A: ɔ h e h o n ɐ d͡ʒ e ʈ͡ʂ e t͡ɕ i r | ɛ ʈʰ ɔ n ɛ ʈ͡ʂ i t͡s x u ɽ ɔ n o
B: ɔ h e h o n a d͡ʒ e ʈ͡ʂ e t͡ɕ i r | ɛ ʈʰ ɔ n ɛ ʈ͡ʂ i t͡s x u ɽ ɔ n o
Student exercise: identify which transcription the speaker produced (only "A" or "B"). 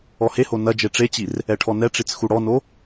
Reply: A